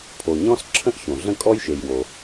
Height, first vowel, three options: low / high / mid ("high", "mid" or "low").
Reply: mid